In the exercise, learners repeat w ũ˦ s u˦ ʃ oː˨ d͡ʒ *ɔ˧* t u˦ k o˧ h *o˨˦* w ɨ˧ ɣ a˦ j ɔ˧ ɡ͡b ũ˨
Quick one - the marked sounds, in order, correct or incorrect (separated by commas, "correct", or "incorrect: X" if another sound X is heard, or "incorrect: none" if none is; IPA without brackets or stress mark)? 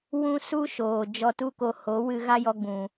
correct, correct